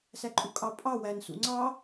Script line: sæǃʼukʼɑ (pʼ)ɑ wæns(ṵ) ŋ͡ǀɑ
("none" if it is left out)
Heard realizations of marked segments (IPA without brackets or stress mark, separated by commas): pʼ, ṵ